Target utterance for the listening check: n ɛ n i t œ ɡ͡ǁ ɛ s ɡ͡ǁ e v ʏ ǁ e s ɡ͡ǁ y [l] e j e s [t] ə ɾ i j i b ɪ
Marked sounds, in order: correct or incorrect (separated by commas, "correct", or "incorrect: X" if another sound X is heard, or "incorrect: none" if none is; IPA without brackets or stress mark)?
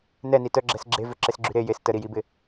incorrect: ɾ, correct